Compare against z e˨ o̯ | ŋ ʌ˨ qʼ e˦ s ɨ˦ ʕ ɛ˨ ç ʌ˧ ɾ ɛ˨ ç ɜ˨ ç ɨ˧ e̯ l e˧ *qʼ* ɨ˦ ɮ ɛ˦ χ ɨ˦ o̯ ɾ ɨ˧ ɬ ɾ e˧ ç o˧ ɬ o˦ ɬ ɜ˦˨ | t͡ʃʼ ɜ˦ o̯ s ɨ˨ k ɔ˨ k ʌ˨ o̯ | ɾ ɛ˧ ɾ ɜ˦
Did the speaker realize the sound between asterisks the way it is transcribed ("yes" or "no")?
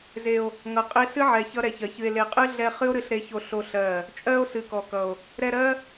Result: yes